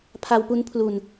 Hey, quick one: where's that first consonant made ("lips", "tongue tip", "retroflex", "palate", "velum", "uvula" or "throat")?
lips